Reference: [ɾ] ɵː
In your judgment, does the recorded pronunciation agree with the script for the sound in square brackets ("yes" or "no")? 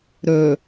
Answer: yes